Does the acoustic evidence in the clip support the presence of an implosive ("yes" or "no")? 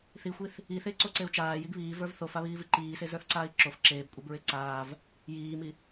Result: no